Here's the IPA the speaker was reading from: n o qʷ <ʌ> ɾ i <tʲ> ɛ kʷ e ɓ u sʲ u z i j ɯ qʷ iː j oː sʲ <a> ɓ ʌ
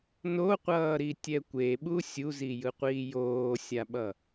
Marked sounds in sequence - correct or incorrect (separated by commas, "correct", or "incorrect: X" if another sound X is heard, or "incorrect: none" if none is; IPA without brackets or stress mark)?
incorrect: ʌː, correct, correct